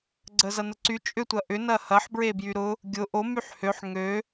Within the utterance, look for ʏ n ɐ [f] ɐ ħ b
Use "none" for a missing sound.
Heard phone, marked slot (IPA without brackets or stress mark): h